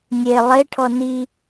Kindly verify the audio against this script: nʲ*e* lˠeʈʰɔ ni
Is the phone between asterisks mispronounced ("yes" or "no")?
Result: no